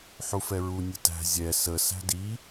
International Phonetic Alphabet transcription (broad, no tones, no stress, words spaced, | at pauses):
ħufɛɹu nʲʊtæ̤ zʲɛ sə sæ̤di